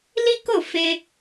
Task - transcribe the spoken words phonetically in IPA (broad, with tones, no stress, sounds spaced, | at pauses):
l i˦ k o˦˨ f e˧